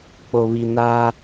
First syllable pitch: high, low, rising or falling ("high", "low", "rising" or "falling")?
low